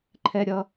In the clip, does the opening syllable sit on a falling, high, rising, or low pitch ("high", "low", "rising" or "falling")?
high